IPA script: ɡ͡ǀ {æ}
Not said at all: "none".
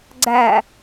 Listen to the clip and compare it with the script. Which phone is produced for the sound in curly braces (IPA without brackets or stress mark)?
æ